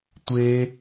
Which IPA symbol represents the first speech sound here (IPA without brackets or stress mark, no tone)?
tʷ